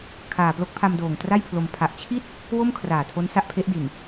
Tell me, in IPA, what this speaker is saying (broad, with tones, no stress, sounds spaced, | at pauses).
kʰ aː˨˩ p l o˦˥ k̚ pʰ a˧ m d oː˨˩ ŋ t r a˥˩ j pʰ l o˧ m pʰ a˨˩ ʔ t͡ɕʰ i˥˩ t̚ | w o˥˩ m kʰ r aː˨˩ tʰ o˦˥ n s a˦˥ ʔ pʰ e˦˥ ʔ d i˨˩ n